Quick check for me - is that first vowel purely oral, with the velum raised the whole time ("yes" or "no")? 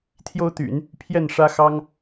yes